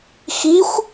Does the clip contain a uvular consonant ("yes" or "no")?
no